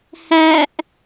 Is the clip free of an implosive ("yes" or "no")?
yes